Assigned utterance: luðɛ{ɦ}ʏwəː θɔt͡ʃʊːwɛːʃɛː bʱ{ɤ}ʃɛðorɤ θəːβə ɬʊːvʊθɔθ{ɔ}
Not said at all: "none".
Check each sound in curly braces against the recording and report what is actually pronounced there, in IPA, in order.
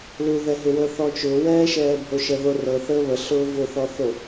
ɦ, o, o

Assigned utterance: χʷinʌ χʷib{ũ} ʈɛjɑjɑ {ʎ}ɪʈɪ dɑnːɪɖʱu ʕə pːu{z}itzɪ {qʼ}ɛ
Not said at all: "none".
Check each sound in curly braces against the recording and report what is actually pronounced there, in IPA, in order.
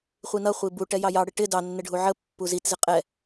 u, ɽ, z, qʼ

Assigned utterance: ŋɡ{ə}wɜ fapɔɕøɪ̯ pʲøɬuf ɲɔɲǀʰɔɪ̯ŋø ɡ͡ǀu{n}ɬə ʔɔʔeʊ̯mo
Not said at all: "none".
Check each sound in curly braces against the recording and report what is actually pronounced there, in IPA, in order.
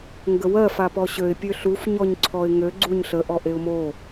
ə, ɲ

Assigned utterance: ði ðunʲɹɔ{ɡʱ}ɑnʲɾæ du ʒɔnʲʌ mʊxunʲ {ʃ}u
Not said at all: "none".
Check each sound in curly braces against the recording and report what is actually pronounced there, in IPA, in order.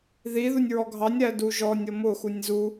ɡʱ, z

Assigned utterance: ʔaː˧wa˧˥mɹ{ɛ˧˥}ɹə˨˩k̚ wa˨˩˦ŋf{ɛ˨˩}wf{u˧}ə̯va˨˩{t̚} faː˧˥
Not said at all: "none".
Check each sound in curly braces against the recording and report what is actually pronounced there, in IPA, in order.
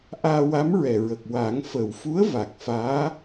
ɛ˨˩, ə˨˩, u˧˥, k̚

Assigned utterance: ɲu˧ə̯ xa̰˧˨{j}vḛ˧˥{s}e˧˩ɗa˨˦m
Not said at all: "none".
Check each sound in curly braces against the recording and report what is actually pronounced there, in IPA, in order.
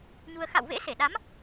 w, s

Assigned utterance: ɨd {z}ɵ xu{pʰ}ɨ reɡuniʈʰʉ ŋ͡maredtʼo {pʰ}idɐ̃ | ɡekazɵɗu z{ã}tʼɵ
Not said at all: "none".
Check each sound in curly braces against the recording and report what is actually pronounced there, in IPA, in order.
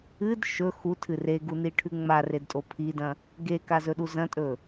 ʃ, tʰ, pʰ, ɐ̃

